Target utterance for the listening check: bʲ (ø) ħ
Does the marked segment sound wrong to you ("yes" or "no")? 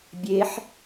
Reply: yes